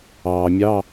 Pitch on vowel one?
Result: low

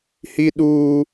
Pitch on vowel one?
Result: high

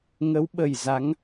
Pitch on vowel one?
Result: rising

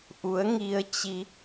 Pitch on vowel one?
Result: rising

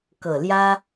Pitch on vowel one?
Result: low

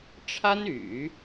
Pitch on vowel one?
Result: high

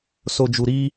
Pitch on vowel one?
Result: low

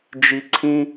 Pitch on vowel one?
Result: low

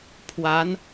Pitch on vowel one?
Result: rising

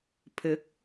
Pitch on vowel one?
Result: rising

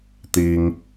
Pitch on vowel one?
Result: high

